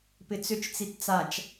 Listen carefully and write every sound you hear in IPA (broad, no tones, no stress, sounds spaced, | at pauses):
p ɪ t͡s ʏ t͡ʃ t͡s i t t͡s a t͡ʃ